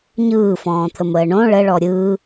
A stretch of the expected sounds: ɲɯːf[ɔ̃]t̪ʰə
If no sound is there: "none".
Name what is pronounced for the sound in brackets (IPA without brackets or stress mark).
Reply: ɔ̃ː